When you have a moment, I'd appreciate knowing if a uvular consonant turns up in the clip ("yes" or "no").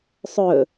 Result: no